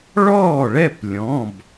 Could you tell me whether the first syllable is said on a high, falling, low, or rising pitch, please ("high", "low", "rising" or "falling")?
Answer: falling